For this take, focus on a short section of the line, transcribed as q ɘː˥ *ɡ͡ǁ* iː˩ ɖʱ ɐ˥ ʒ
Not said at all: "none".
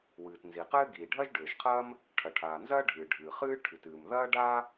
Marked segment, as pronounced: ɡ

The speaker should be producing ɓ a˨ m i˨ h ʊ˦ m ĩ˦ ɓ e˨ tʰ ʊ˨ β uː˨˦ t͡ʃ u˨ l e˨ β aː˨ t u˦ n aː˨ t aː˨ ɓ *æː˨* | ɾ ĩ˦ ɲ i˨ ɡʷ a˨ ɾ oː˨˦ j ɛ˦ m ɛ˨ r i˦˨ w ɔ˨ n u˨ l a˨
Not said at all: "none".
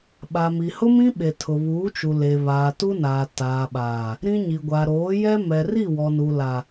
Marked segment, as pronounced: aː˨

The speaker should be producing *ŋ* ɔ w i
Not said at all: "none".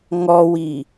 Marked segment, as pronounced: ŋ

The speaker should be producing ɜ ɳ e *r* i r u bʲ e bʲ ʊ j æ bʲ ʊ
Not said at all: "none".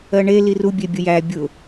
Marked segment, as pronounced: l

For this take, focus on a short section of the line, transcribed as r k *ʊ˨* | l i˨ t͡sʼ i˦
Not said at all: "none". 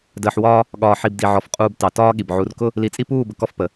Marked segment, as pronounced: ʊ˦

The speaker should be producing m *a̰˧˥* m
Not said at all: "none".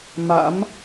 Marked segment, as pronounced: a̰˧˥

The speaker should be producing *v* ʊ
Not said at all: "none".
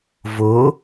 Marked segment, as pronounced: v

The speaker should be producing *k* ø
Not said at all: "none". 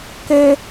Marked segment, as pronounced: k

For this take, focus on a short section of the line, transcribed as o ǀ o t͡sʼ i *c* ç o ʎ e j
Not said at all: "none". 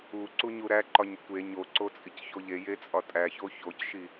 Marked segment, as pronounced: c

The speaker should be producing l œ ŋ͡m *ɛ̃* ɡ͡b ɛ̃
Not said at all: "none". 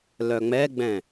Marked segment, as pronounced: ɛ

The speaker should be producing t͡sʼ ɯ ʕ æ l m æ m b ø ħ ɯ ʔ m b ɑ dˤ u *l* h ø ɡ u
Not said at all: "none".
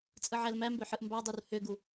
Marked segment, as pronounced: r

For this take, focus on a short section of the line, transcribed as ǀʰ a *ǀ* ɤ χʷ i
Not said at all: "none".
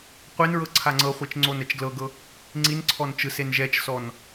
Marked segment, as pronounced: ŋ͡ǀ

